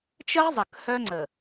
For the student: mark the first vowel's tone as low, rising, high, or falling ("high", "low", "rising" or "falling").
high